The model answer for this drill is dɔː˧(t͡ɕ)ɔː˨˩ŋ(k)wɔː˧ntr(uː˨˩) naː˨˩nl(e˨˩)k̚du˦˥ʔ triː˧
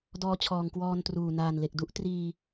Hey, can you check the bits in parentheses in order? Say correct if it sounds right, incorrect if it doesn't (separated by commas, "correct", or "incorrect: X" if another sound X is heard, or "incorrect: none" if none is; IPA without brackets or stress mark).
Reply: incorrect: t͡ɕʰ, correct, correct, correct